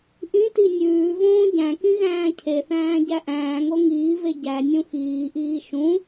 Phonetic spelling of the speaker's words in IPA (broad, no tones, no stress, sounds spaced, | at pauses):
ʔ ĩ t i nʲ ʉː v õː ɟ æ̃ k ĩ ɣ æ̃ː cʰ e θ æ̃ː ɟ æ ʔ æ̃ː ŋ o ŋ iː v e ɟ æ nʲ ũ x iː ʔ iː ʃ ũ